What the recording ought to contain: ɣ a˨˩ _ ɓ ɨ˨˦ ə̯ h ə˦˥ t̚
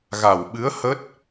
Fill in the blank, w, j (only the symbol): w